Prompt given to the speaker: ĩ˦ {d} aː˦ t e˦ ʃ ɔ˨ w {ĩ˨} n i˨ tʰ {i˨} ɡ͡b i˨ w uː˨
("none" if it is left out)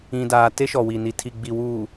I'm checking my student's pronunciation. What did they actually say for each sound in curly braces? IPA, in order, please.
d, i˨, i˨

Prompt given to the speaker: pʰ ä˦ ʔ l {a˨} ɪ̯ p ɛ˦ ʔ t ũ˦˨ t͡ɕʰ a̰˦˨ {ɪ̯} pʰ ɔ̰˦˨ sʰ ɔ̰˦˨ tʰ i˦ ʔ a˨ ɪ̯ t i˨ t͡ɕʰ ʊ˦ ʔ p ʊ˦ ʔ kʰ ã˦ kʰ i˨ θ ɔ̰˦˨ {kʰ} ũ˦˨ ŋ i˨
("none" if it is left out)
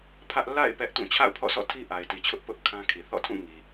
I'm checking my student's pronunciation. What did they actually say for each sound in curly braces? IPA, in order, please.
a̰˦˨, ʊ̯, tʰ

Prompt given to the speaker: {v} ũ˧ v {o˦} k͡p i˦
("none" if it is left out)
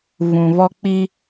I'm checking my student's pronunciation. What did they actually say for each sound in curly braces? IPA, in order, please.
v, ɔ˦

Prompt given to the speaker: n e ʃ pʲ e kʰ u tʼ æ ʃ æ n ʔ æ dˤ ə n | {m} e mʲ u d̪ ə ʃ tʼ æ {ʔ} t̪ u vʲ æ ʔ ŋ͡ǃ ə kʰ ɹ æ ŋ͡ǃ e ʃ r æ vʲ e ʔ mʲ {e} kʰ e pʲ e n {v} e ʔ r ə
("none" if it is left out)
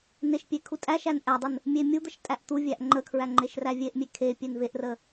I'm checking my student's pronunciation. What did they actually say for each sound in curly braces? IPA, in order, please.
mʲ, ʔ, e, v

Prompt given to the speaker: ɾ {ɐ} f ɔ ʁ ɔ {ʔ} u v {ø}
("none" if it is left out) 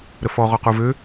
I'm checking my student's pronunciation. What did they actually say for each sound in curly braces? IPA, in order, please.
ə, q, ø

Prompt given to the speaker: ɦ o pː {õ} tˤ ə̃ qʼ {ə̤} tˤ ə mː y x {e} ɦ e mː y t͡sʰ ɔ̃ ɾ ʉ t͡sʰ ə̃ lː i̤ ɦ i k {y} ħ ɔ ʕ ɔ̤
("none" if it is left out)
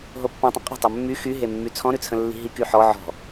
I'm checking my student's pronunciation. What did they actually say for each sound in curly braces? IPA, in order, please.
õ, ə̤, y, y

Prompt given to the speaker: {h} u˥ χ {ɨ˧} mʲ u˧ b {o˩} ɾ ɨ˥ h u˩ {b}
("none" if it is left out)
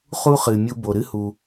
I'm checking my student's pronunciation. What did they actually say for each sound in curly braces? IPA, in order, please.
χ, ɨ˩, o˩, none

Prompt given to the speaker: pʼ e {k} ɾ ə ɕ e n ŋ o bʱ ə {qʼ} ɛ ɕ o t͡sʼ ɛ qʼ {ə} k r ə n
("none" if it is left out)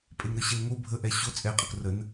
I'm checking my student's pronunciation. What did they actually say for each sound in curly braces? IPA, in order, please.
ŋ, ʔ, ə

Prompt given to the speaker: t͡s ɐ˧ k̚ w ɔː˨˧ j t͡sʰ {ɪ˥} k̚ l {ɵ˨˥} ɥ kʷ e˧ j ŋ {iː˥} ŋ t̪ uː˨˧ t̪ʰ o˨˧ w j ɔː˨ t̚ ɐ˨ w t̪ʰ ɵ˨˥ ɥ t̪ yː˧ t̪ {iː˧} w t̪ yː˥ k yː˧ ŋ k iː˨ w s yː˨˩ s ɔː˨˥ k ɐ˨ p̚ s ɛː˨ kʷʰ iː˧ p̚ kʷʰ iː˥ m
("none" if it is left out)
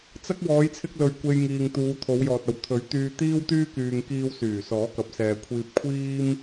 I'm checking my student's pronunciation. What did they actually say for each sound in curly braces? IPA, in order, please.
ɪ˧, ɵ˨, iː˨, iː˥

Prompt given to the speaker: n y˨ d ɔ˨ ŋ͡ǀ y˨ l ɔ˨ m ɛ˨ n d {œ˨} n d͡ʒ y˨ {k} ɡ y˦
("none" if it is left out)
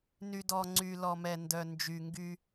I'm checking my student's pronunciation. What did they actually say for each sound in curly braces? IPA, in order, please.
œ˨, ŋ

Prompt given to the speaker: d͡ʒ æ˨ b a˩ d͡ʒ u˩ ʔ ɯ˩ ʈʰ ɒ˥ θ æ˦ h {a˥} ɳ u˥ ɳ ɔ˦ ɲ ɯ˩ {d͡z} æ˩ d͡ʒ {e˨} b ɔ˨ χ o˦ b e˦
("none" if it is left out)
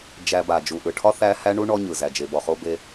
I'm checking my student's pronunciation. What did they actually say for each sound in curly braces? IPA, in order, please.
æ˥, z, e˨

